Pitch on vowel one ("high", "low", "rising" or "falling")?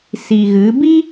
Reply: low